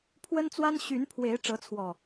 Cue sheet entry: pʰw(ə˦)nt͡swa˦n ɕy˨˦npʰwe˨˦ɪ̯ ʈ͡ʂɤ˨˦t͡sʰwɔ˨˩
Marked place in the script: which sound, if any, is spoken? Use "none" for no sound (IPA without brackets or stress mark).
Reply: ə˦